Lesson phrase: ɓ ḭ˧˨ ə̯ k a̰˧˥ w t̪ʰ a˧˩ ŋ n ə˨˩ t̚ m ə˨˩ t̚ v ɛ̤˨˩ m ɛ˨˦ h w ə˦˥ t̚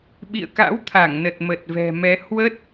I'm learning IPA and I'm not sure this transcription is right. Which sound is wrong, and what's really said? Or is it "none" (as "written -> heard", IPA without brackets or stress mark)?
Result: none